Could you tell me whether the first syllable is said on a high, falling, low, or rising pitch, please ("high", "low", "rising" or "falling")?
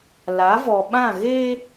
rising